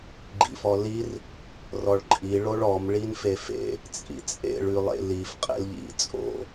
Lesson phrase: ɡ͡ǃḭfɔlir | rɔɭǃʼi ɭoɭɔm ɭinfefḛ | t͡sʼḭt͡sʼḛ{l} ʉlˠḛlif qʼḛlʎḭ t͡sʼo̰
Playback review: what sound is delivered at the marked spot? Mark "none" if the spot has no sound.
ɭ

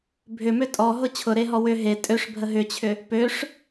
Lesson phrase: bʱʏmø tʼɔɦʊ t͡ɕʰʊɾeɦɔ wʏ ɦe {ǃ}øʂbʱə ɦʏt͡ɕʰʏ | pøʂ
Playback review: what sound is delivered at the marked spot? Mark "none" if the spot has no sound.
tʼ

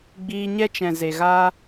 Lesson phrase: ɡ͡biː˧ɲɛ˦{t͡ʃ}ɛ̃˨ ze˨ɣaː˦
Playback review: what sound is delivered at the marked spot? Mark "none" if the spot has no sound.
t͡ʃ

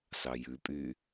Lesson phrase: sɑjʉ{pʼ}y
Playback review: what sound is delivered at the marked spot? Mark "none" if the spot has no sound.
pʼ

